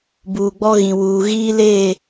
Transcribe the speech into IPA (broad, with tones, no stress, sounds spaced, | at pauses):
b uː˨ ɡ͡b ɔ˦ ɣ ĩ˨ w uː˨ ɣ iː˦ l eː˦˨